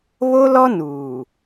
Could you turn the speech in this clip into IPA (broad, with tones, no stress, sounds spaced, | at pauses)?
β o˦ l ɔ˦ n uː˨